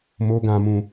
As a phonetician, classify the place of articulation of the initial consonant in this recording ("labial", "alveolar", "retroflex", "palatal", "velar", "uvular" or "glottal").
labial